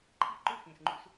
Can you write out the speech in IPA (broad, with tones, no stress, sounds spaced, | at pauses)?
ǃʰ ḭ˦˨ ǃ ʉ˦˨ x ĩ˨ s ŋ͡ǃ ṵ˧ s